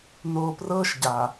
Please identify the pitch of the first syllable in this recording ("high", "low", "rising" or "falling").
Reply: low